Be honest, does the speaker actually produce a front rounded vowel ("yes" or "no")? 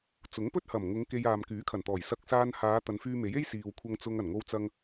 yes